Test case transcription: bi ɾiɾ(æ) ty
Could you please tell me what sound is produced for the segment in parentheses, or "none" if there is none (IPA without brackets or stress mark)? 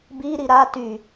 a